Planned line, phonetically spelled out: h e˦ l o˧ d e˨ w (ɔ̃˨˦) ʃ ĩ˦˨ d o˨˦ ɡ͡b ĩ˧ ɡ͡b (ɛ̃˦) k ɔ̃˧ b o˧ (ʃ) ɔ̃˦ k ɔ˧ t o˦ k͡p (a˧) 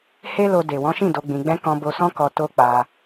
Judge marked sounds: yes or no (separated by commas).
yes, yes, no, yes